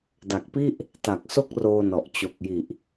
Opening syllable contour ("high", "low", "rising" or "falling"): low